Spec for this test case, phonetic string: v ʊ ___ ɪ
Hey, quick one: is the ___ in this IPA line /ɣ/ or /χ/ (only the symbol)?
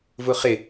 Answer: χ